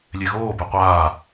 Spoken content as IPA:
lʲeɣoː beqʷaː

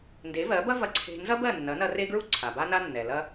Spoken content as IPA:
nde˩˥vɜ˩˥bɐ˥vɐ˧ ǀʰe̤˧ nzɐ˥bɜ˥˩nːɐ˩˥nɐ˧ re˥ɡɹu˥ ǀʰa˩ba˥na˥ nːɛ˩ lɐ˧

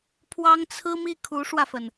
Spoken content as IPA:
pʰwɑ˥ŋt͡sʰɹ̩˥mi˥˩ kʰu˧˥ʂwä˧fə˩n

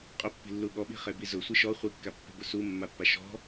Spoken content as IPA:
qʼʊpːi̤lːu ɠɔɓi̤χebi zʊsʷi ʃɔ χʷikːapːe̤bʊ sumːapːa ʃɔ̤

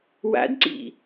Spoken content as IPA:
wa̰dǀḭ

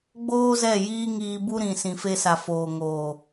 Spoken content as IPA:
ɡ͡boː˦zɛ˦˨ jiː˦ŋiː˧bu˦ ɾĩ˨ sĩ˨fe˧sa˨ foː˨ŋoː˨

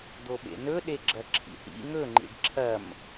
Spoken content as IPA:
d̪oɓḛnɵ ɗeɡ͡ǁɐǁʰḭhḭ ŋɵŋ͡ǃḭɖ ǁʰɐm

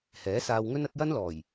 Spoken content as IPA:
hɛː˨˥saː˧wŋɵ˥n ɐ˨˥t̚jɐ˥nlɔː˨˩j

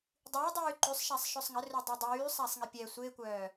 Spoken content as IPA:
dˤyːdˤyː ǃysˤʃasˤʃøsˤ ŋərødˤy dˤyːsˤasˤŋi pʲɛ sʷɪːkʷœː

